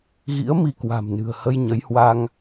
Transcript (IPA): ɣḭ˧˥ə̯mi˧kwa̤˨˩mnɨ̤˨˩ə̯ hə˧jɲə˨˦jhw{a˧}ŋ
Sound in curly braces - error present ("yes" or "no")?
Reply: no